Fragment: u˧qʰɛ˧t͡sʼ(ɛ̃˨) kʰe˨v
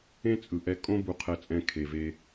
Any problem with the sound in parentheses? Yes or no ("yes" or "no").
yes